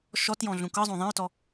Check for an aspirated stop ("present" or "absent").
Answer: absent